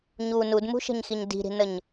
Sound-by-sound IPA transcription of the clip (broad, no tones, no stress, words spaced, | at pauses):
ɲu nudmṳʃə̤ɲxiɲ di̤ɾi̤nəɲ